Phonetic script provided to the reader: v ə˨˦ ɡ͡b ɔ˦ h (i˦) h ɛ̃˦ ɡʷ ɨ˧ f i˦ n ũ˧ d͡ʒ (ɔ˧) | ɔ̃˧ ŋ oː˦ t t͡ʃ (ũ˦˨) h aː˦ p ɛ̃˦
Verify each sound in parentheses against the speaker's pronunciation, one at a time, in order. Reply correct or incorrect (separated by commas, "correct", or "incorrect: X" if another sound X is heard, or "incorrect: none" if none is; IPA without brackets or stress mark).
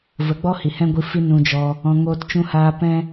incorrect: i˨, correct, incorrect: ũ˦